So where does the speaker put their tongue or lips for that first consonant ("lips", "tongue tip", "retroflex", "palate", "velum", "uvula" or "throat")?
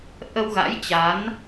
throat